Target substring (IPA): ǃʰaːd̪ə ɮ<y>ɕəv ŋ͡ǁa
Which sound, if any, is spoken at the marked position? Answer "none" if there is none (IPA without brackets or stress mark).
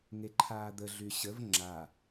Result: y